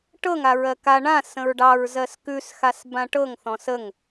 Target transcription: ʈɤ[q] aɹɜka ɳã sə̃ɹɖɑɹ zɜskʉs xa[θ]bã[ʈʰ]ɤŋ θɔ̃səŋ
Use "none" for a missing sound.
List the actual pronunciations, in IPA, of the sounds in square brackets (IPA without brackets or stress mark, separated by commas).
ŋ, s, ʈ